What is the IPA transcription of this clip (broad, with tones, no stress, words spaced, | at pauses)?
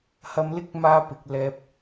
hɐ˧mlɪ˥k̚maː˧ pɪ˨k̚ lɛː˨p̚